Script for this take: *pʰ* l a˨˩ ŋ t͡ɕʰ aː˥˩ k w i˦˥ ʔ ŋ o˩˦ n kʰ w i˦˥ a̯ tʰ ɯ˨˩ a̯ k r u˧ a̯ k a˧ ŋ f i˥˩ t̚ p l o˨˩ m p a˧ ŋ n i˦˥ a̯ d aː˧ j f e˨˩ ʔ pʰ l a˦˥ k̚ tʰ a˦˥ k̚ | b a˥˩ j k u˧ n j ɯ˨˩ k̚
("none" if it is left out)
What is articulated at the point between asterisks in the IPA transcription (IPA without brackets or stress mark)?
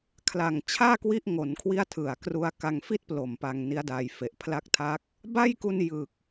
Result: kʰ